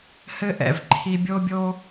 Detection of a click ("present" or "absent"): present